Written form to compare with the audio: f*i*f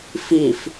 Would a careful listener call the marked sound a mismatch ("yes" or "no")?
no